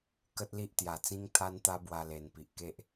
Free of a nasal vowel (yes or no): no